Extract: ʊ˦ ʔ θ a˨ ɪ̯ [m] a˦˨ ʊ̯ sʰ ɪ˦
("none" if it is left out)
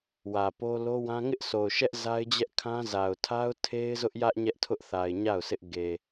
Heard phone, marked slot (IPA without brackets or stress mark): ɲ